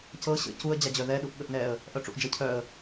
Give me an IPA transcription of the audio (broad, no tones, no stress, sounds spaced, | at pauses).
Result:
c ɤ ɕ ə̰ c u ə̯ d͡ʑ a d͡ʑ œ ð ɛ ɗ u ʔ ɠ ə ʔ n ɛ ə̯ | ʔ œ ʈ͡ʂ ṵ ʔ d͡ʒ ɤ cʰ œ ə̯